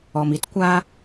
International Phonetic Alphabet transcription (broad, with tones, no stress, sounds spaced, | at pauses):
ɔ˨ m i˦ t kʷ a˦